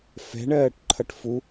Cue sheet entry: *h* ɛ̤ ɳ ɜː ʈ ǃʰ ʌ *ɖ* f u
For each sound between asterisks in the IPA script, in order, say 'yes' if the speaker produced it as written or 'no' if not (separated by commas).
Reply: no, no